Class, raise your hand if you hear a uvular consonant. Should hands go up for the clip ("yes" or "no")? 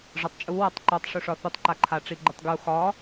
no